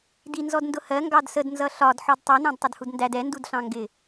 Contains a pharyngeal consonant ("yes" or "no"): yes